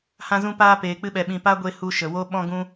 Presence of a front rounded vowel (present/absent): absent